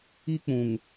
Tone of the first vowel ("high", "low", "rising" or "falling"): high